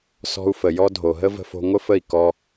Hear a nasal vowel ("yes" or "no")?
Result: no